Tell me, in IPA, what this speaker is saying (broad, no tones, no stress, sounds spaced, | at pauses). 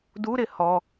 d u ɾ ɪ h ɔ